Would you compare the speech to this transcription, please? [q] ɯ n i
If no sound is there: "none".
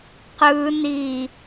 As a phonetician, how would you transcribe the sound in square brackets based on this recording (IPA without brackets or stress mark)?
q